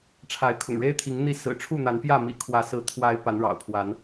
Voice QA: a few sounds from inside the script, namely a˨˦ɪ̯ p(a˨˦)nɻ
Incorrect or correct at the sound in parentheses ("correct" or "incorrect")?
correct